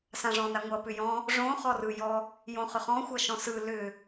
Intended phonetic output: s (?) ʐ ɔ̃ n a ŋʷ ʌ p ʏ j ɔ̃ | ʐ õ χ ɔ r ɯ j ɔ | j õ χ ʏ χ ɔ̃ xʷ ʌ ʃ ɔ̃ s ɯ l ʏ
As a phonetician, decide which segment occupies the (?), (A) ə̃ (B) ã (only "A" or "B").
B